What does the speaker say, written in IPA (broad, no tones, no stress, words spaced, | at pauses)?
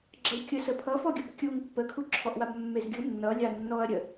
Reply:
ɡ͡ǁʌwkʲə səpʰʌfɔɡʲub kʲuŋ pːəkʰuǁʰɔʔwab mːezɡʲu nːʌ lʲanːɔɐ̯ ɾʲə